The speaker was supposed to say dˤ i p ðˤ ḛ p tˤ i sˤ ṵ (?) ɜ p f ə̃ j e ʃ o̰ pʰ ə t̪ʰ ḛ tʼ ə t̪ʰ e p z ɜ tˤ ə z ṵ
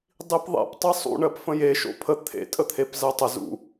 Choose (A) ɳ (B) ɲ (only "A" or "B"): A